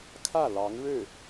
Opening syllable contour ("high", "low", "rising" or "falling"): falling